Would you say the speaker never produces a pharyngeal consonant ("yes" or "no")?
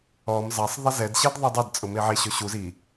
no